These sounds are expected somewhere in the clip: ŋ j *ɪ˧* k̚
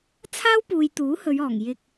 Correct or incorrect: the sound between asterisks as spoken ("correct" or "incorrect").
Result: correct